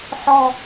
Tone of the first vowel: low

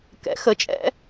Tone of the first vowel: rising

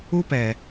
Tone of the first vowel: high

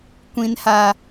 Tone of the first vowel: high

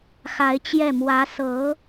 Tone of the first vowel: rising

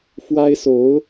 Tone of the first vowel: high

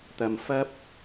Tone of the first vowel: low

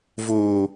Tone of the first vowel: low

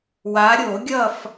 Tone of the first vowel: rising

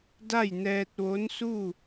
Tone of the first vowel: falling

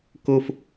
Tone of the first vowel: high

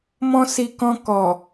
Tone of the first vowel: high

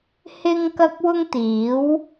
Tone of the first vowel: high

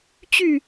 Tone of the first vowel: falling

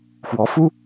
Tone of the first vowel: rising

